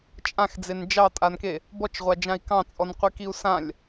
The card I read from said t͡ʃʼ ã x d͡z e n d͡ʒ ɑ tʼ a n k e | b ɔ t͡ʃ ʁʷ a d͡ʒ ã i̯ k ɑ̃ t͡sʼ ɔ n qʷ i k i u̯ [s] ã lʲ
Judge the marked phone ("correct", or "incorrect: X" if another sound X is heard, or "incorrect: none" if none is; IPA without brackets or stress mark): correct